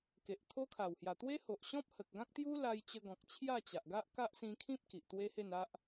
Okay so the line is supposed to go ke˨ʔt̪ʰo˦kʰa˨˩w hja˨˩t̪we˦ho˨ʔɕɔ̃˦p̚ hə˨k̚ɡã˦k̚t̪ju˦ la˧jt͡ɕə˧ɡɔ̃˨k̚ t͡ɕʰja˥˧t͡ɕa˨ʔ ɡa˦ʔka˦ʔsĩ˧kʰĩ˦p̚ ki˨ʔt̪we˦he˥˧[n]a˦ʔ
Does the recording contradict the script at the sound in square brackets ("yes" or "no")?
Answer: no